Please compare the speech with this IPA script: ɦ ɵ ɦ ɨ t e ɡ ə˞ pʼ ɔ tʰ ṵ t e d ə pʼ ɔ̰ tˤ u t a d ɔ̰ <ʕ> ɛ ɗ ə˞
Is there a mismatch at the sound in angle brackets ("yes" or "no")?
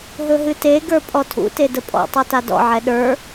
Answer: no